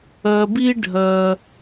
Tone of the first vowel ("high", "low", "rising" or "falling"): low